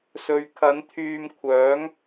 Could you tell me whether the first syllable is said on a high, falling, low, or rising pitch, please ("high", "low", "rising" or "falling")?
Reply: low